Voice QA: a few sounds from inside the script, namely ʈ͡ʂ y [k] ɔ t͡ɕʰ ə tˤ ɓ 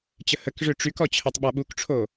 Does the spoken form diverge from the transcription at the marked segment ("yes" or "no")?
no